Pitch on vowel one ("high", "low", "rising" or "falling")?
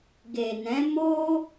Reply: low